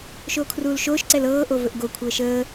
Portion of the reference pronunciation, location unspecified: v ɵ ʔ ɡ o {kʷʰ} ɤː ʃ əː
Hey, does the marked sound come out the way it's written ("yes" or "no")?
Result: yes